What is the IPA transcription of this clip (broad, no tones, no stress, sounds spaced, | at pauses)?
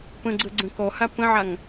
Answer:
p ə̃ ɡ͡ǀ ə ɡ͡ǀ ə̃ k ɔ h a p ə̃ ʕ a ŋ